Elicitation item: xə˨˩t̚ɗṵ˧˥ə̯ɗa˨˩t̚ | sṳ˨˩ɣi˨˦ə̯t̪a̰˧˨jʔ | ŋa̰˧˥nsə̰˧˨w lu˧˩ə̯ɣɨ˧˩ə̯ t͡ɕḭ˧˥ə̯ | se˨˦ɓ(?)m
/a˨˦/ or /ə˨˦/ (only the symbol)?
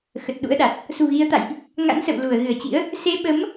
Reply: ə˨˦